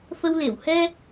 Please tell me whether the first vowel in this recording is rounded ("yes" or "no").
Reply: no